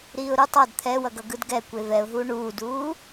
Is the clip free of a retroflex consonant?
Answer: no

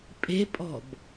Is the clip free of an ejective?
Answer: no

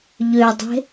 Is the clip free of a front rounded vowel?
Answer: no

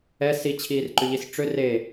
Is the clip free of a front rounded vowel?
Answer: no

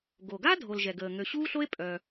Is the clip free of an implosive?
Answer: yes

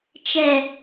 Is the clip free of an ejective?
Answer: yes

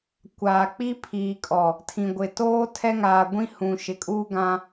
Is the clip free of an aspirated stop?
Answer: no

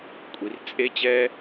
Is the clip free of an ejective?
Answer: no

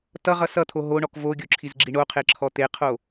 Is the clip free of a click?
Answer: no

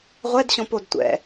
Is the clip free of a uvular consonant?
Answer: no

